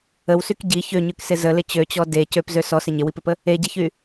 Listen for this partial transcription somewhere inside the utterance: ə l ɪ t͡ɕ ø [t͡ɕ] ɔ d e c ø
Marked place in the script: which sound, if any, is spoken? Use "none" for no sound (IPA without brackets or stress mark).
t͡ɕ